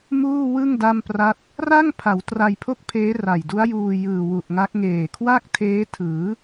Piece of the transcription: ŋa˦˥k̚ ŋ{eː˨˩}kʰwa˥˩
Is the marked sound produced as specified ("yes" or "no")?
yes